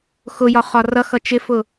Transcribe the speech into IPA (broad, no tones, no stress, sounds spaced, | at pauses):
x ʊ j ɒ χ ɒ r ʌ x ʌ t͡ʃ ɪ f ʊ